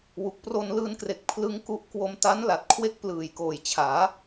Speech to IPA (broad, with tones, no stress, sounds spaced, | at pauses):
w u˨˩ k̚ p r o˧ n l ɯː˧ n k r e˨˩ k̚ pʰ l ɯ˦˥ ŋ k u˦˥ ʔ k w o˧ m t a˦˥ n l a˨˩ t̚ kʰ w e˦˥ k̚ p l ɯː˨˩ j k oː˨˩ j t͡ɕʰ aː˩˦